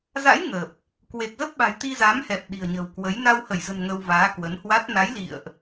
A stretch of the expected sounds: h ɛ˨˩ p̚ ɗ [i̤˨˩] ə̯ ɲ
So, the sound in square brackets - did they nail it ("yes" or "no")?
yes